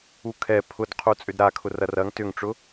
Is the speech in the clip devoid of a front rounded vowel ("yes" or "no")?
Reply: no